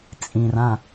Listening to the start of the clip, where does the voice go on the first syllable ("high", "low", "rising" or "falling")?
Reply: low